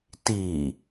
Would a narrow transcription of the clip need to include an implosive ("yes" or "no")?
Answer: no